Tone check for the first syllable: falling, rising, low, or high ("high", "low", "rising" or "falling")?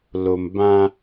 low